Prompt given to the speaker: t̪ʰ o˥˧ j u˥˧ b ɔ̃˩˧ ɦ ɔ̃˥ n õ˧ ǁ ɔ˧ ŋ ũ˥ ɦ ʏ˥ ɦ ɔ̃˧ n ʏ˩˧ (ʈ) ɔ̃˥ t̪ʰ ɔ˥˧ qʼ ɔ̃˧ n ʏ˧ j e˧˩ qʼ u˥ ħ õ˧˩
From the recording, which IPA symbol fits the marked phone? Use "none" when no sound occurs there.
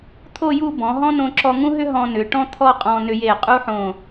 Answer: ʈ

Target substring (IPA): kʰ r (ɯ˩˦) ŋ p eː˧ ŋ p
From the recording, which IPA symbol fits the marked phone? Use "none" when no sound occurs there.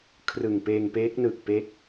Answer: ɯ˨˩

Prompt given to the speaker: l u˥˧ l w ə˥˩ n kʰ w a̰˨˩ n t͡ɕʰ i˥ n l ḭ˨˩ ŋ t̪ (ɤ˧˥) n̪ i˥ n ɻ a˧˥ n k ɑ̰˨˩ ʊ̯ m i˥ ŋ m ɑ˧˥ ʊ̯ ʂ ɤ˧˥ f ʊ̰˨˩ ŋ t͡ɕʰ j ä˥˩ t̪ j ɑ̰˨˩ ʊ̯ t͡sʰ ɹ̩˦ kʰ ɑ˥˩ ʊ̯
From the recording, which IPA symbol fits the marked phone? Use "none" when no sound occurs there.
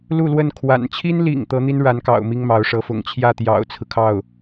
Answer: ɤ˧˥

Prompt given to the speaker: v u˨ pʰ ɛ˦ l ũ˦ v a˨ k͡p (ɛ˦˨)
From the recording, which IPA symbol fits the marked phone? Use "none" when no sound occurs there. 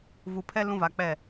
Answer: ɛ˦˨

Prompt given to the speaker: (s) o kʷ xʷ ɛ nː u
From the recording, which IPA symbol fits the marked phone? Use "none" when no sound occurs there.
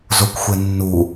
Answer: z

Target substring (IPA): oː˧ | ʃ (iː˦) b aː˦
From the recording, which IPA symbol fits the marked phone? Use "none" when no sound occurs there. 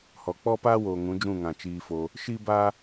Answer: iː˦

